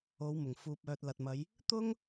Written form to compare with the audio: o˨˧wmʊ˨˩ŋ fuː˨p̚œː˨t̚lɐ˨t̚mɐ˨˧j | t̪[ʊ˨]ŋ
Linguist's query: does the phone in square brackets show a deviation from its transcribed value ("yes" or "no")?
yes